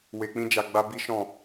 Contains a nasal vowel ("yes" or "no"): yes